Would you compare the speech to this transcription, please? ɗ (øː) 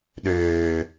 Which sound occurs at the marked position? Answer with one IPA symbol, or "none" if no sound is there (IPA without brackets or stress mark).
øː